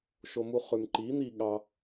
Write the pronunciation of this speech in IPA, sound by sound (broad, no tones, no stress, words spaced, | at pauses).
ʃomuχʉmǃi n̪i ɠɑ